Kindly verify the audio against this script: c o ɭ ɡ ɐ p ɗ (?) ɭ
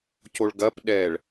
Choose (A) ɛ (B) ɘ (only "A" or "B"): A